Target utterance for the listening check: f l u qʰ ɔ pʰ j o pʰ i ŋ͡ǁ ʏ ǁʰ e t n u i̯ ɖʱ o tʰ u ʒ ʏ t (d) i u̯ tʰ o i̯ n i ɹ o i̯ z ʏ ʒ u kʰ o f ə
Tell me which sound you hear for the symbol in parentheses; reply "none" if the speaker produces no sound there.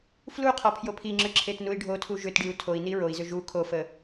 ɖ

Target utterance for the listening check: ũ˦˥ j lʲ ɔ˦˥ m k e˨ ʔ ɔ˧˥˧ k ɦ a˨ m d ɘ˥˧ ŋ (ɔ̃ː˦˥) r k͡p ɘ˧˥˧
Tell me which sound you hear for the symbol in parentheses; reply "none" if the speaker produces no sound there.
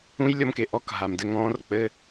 ɔ̃ː˦˥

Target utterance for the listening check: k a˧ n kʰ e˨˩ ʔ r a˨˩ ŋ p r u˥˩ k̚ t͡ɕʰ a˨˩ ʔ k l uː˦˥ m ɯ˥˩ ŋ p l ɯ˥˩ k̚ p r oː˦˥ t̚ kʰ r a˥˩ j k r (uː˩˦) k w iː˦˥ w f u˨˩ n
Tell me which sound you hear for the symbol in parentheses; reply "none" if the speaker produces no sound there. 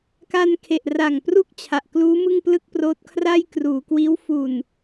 uː˩˦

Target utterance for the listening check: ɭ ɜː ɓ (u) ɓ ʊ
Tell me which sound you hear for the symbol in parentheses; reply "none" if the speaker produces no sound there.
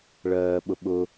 ʊ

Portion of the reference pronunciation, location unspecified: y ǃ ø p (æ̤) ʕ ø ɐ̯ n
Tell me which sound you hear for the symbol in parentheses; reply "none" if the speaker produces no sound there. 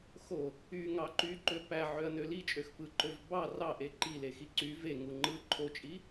æ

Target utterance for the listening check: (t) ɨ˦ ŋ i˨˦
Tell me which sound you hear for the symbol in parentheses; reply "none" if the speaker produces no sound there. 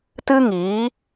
t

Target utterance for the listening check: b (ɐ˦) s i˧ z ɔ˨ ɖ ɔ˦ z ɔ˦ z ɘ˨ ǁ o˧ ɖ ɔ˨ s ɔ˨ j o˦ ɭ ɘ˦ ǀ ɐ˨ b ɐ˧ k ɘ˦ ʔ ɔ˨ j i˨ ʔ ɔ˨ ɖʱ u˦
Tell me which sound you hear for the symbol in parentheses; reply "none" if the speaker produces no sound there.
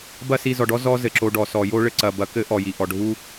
ɐ˦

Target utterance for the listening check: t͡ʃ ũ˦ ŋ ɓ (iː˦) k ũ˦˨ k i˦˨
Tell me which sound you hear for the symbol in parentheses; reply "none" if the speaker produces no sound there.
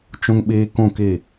iː˦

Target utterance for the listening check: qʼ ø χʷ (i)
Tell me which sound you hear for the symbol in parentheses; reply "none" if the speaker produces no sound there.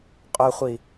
i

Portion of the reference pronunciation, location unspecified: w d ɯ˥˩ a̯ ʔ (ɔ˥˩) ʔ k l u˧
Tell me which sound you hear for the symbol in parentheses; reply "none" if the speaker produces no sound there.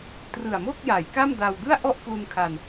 ɔ˥˩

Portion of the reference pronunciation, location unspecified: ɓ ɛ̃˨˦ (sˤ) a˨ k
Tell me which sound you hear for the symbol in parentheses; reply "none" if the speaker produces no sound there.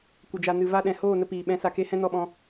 s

